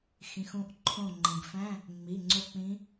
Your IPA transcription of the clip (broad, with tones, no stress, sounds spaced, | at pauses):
x ĩ˩˧˩ x ũ˧˥ ʔ ǃʰ õ˦˨ ŋ͡ǃ ĩ˩ ɡ f æ̃˧˥˧ | ŋ͡m i˩˧˩ ŋ͡ǀ o˦˨ k͡p ĩ˧˥